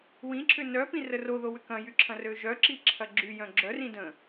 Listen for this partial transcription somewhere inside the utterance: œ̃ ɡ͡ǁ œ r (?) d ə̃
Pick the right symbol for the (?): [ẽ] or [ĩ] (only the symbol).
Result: ĩ